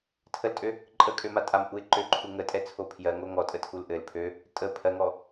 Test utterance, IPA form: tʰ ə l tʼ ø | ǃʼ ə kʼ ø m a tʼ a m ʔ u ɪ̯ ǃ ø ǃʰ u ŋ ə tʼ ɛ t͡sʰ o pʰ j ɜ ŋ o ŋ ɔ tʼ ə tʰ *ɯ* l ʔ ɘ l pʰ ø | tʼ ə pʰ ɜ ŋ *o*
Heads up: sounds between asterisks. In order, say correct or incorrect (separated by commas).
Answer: incorrect, incorrect